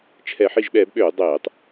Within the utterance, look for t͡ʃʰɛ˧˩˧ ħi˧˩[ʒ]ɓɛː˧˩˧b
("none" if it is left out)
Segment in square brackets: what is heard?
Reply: ʒ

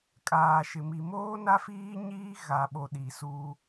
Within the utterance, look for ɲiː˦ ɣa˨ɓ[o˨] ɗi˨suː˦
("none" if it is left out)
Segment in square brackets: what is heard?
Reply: o˨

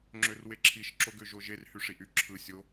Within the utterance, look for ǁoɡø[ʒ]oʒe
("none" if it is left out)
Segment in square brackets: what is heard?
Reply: ʒ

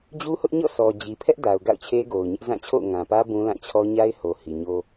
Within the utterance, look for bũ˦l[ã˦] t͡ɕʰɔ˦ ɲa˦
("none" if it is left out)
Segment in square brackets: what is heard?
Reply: ã˦˨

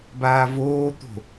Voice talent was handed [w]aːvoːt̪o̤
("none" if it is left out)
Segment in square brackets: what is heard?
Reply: b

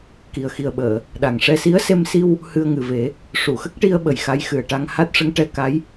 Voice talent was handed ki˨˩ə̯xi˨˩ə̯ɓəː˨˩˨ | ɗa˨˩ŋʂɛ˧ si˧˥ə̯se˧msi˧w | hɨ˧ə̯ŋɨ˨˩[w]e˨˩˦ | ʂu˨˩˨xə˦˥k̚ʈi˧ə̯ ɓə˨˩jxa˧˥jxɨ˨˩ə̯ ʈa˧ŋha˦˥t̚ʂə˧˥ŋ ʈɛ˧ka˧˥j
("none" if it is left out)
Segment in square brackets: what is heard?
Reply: v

